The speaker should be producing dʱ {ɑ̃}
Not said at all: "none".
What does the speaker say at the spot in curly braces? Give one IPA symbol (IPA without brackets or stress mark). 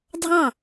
ɑ̃